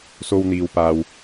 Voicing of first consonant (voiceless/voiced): voiceless